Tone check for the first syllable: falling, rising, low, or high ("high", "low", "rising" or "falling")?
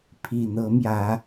low